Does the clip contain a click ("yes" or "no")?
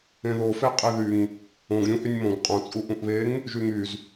no